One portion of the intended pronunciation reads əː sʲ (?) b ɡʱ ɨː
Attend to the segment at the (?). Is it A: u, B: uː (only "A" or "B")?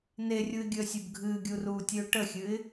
A